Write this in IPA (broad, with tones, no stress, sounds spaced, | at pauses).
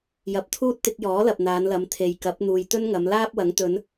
j ɐ˨ p̚ t̪ʰ uː˥ t̚ t̪ ɪ˧ k̚ j ɔː˨˥ l ɐ˨ p̚ n̪ aː˨˧ n l ɐ˨˧ m t̪ʰ e˨ j k ɐ˨˥ p̚ n̪ uː˨ j t̪ ɵ˥ n ŋ ɐ˨˧ m l aː˥ p̚ w ɐ˨˥ ŋ t̪ ɵ˨˧ n